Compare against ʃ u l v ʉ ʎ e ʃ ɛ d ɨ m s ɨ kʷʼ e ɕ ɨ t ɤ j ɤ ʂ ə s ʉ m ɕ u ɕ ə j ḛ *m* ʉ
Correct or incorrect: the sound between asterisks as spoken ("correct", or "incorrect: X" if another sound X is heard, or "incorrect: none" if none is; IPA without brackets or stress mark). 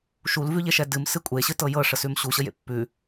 incorrect: pː